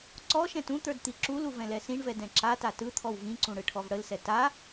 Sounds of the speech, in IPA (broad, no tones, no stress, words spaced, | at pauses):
ǀɔʃɛ̃t ũt̪ə˞d t̪iǁulu vɛ̃lɛsĩɳvɛ dɛ̃ǁata tɯt̪ʰɔw vĩǀũ ɽɯʈʰɔvɽəlsɛ ta